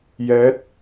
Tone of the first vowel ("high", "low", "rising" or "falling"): rising